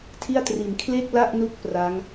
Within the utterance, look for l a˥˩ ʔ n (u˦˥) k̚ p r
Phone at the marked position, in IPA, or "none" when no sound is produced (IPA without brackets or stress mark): u˦˥